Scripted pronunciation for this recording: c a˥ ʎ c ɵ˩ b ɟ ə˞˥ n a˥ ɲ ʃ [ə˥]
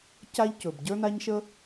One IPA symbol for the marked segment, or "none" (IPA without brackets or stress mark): ə˥